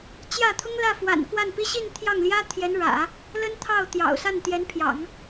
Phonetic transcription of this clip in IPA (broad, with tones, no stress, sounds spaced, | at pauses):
t͡ɕ j ä˥˩ t̪ʰ ʊ˥ ŋ l ä˥˩ f w a̰˨˩ n k w a˥˩ n p i˥ ɕ i˥˧ n t̪ʰ j ɑ˥˩ ŋ l j ä˥ t̪ʰ j ɛ˧˥ n ɻ ä̰˨˩˦ | l ə˥ n t̪ʰ ɑ˥˩ ʊ̯ t̪ j ɑ̰˨˩ ʊ̯ s a˥˩ n t̪ j ɛ˧˥ n pʰ j ɑ̰˨˩˦ ŋ